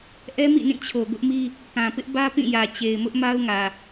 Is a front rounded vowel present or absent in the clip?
absent